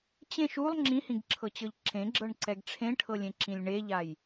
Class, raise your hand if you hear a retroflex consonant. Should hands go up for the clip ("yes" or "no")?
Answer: yes